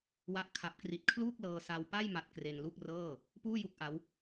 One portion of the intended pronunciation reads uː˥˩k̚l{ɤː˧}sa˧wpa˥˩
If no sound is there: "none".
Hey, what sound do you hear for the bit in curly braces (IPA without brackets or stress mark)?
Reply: ɤː˧